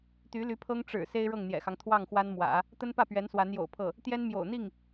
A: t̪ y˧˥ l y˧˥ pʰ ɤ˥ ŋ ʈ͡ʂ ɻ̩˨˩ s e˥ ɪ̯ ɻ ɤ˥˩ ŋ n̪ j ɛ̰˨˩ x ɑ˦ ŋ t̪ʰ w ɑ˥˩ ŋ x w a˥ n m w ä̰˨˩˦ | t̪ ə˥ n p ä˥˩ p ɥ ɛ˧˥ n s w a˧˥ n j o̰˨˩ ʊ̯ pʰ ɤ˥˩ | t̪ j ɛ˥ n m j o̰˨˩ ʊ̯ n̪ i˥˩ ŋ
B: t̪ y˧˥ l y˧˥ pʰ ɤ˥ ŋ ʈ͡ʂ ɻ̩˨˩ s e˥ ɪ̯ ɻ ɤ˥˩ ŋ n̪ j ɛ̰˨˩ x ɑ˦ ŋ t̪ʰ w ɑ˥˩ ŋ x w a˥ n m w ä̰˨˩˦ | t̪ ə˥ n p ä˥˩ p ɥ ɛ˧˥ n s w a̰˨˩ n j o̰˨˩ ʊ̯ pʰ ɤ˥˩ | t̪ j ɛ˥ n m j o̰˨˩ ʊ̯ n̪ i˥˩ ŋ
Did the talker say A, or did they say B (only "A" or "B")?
A